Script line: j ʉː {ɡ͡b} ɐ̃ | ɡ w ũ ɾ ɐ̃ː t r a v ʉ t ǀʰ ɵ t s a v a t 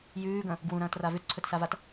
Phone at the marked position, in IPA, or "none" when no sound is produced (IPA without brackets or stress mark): ɡ